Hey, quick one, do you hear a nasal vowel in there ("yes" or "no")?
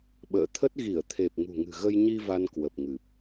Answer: no